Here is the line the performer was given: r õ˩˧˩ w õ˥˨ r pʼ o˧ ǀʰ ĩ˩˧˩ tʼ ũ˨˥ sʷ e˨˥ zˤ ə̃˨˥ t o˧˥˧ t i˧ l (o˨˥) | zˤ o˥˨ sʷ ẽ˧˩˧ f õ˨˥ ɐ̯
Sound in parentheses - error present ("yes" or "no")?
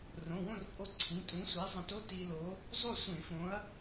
no